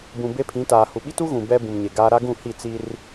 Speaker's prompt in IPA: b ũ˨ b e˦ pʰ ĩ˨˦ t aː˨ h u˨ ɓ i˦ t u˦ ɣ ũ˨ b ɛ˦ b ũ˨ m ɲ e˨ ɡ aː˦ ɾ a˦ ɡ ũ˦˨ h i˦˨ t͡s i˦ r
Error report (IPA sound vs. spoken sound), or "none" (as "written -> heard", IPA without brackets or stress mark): none